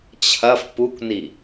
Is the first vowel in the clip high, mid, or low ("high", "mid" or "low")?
low